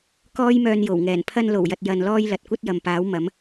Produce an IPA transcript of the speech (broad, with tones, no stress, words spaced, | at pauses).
kɔː˥jmœː˧n jo˨˩wŋɛː˨˩n pʰɐ˧nlo˨˩wjɐ˨t̚ jɐ˧nlɔː˥j lɐ˨t̚kʷɐ˥t̚jɐ˨mpaː˨˥w mɐ˨˥m